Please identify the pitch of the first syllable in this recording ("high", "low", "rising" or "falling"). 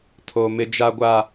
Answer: low